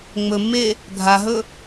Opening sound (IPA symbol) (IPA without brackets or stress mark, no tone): ŋ͡m